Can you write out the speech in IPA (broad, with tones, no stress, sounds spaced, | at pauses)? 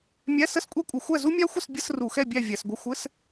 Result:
mʲ æ˧˥˧ s ə˥˨ s kʷʼ ɛ˥ kʷʼ ə˧˩˧ xʷ æ˥˨ z u˥ mʲ æ˥ xʷ ə˥˨ s bʲ ə˧˥˧ s r u˧˩˧ x ɛ˥˨ bʲ æ˥˨ vʲ æ˧˩˧ s ɡʷ ɘ˧˥˧ xʷ ɘ˧˥˧ s